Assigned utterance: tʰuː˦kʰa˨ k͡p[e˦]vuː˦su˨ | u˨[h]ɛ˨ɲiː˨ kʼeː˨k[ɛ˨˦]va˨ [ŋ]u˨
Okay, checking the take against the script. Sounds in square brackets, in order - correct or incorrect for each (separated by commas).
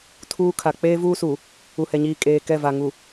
incorrect, correct, incorrect, correct